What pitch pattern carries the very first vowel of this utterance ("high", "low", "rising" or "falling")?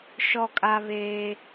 high